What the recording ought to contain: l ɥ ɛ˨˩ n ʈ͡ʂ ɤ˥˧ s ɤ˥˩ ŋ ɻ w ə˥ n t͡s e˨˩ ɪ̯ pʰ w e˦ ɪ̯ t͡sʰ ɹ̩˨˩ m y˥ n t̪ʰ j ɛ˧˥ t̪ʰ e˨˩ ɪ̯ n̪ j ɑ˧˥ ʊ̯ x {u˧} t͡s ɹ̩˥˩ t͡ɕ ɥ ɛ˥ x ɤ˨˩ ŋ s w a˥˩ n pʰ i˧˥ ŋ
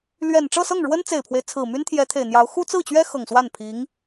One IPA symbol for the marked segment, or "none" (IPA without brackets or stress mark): u˥